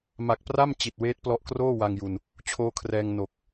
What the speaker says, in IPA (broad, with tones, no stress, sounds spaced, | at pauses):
m a˨˩ k̚ p r a˥˩ m t͡ɕ i˨˩ t̚ w eː˦˥ t̚ p l ɔ˦˥ ʔ k r oː˥˩ w a˧ ŋ j u˧ n | t͡ɕʰ oː˦˥ kʰ r ɛː˧ ŋ n o˨˩ k̚